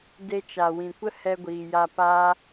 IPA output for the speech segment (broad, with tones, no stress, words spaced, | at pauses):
de˧t͡ʃa˨wĩ˨kʷə˦ hɛ˧ɡʷiː˨ja˧ paː˦